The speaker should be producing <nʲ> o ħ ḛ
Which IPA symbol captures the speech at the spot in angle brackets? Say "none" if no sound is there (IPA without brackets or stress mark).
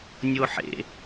nʲ